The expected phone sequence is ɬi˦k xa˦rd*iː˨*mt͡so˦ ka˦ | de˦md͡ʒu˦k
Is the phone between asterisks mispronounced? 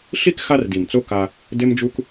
yes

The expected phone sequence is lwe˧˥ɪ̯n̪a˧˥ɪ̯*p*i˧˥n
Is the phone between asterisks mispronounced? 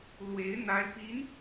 no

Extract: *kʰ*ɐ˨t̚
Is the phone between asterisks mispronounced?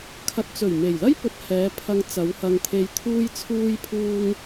no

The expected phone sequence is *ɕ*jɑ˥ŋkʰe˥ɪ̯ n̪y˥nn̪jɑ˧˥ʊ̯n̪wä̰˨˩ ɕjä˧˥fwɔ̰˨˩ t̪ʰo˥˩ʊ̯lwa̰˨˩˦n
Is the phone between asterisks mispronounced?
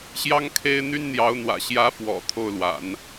no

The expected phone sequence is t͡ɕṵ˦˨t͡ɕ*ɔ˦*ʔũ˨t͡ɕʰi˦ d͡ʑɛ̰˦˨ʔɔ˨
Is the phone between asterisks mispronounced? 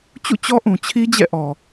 no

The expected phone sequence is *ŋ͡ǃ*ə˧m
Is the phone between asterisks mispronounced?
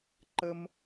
yes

